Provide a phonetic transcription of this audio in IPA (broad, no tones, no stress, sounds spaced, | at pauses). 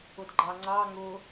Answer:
ʊ d ɡ͡ǃ ɑ ŋ͡ǀ ɑ ŋ ʊ